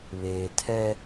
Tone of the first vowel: low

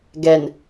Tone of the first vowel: low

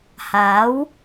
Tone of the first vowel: rising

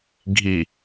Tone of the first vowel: low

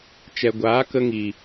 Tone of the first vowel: low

